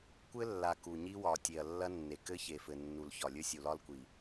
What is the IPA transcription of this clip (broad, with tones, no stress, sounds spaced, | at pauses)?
kʷ ɘ˦ lː a˨ k u˨ ɲ i˦ w ɒ˨ tʲ e˨ ɐ̯ lː ɐ˦ nː e˨ k ɘ˦ ç e˨ f ɘ˨ nː u˨ l ç ɒ˨ lʲ ɵ˦ sʲ u˨ l ɒ˦ l kʷ i˨